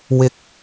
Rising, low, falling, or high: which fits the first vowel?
high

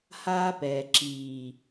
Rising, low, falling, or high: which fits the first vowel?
high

